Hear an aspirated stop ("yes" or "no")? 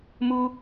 no